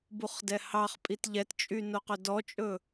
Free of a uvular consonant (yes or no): no